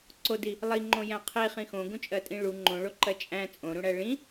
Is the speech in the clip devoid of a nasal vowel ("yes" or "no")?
no